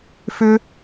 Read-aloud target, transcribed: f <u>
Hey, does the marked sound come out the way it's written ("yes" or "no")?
no